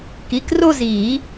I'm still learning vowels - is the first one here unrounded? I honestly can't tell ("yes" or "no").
yes